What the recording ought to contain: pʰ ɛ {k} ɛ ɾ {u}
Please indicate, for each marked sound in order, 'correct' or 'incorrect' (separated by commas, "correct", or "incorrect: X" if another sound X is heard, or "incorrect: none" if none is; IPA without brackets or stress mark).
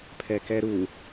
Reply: correct, correct